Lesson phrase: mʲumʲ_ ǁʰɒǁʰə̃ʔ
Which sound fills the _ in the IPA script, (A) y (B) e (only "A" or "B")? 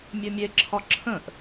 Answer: B